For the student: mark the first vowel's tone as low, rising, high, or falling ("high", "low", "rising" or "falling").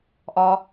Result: high